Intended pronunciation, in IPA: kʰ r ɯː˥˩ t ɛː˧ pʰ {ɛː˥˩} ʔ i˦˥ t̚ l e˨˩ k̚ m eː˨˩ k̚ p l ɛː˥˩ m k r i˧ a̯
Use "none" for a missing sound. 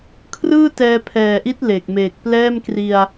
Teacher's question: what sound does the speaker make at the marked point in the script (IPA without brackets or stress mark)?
ɛː˨˩